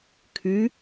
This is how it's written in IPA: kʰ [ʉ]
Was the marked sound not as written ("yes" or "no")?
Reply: no